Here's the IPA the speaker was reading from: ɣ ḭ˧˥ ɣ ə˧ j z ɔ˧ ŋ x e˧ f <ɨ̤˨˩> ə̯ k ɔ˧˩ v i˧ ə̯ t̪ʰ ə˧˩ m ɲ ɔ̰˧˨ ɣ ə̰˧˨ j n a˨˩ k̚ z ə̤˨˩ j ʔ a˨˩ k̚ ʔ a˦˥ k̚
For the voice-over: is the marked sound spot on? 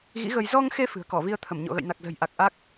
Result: yes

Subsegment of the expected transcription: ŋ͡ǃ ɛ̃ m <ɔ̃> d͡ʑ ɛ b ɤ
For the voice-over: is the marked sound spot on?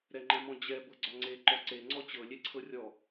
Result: yes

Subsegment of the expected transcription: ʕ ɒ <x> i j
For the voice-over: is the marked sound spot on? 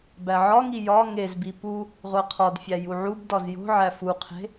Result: no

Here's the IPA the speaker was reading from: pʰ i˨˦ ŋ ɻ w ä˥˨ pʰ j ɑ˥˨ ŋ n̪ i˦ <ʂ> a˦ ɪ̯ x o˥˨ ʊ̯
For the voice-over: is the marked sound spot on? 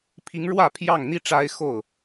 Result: no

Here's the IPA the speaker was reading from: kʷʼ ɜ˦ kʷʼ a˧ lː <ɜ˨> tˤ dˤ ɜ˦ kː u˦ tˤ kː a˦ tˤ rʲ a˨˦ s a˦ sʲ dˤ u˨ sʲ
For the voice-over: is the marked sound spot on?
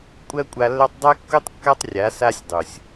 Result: no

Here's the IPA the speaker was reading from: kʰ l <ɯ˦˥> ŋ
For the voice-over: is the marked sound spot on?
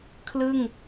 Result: no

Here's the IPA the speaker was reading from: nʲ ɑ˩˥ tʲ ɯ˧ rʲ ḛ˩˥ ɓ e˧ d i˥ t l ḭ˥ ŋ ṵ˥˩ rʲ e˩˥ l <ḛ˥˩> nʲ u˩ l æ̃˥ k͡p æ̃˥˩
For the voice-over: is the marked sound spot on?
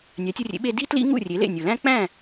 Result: yes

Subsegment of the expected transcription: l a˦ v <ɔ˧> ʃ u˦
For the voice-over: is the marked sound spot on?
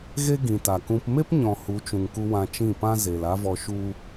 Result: yes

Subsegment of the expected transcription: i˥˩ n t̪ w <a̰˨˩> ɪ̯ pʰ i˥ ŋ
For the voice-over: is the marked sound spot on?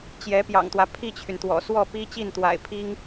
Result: yes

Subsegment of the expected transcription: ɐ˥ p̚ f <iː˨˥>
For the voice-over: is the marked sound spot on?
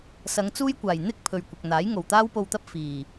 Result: no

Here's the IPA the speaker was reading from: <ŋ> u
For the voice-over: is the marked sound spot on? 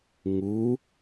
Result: yes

